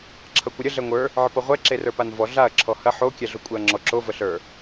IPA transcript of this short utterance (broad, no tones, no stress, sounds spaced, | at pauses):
ǁʰ ʌ kʷ ə ɾʲ ə ɮ ɛ ŋʷ ə˞ | ʕ ə p ʌ ʁʷ ɛ ǁ e r ə˞ p a n v ɔ ɮ a ɐ̯ ǁʰ ɔ h ɐ ħ o kʲ ɛ ɮ o kʷʼ ɛ ɐ̯ ŋ͡ǁ ɔ ǁ o v ə ɬ ə˞